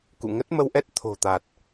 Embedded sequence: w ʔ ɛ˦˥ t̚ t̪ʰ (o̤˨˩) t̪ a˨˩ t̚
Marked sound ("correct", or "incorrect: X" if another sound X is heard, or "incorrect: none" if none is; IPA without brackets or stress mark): correct